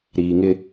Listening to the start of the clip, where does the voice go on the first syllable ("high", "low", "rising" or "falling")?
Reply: low